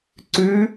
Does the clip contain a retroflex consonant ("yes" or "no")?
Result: no